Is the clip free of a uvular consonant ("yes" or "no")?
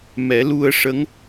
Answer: yes